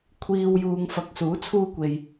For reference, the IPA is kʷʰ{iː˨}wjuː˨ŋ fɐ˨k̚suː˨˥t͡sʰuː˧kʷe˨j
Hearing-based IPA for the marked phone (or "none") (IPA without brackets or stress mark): iː˨